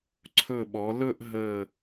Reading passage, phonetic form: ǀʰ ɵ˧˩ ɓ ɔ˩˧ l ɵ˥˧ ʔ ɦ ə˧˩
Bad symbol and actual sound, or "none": none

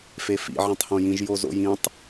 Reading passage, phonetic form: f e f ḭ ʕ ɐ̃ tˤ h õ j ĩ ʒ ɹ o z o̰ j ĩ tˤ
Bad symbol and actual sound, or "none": ɹ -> j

